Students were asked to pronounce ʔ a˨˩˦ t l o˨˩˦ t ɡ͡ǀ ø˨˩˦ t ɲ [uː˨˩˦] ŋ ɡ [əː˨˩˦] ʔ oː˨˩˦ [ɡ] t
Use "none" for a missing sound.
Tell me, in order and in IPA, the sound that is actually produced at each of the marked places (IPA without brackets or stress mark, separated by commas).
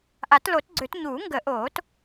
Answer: uː˨˩˦, ə˨˩˦, none